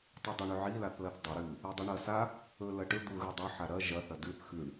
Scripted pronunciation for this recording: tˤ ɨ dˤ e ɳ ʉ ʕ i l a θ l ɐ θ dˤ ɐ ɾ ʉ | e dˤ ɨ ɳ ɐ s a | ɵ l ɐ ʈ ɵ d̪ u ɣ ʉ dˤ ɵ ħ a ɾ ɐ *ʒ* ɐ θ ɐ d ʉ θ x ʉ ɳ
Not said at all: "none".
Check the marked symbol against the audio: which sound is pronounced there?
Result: ʒ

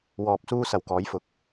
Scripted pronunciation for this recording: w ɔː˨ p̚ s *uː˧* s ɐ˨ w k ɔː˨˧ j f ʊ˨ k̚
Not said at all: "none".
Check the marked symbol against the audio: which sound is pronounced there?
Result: uː˧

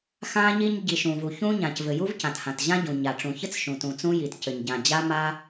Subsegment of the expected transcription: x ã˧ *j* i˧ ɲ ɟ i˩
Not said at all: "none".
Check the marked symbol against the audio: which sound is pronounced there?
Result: ɲ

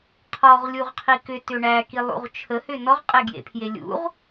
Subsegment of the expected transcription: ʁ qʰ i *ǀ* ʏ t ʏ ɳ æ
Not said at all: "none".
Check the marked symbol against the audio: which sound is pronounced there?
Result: k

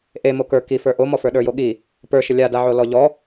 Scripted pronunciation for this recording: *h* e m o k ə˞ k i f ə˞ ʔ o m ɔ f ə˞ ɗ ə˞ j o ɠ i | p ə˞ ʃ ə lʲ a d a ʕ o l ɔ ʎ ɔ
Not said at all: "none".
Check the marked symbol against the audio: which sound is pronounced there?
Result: ʔ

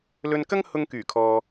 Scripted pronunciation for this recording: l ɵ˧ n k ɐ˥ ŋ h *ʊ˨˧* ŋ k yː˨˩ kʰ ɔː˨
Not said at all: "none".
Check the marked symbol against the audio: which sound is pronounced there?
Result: ʊ˧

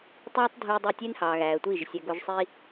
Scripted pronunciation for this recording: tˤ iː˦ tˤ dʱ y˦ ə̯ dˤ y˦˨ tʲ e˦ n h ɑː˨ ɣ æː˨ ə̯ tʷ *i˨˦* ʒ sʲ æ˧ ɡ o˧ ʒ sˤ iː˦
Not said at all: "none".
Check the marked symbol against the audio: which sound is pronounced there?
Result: i˦˨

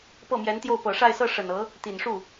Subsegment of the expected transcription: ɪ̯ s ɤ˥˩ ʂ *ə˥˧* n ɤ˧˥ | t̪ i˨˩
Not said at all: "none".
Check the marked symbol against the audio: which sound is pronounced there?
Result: ə˨˩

